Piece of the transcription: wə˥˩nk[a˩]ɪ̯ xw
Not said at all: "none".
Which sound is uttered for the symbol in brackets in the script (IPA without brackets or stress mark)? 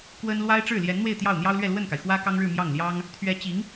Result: a˩